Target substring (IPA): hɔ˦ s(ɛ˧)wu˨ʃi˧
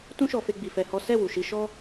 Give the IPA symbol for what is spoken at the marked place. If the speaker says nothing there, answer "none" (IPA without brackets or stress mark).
ɛ˦˨